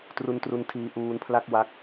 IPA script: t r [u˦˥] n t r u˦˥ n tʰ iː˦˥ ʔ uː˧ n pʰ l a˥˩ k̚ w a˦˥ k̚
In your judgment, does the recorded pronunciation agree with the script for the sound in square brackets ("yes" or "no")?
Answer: yes